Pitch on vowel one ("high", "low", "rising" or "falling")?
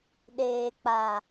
low